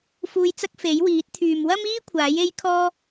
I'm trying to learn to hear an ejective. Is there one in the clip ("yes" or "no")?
no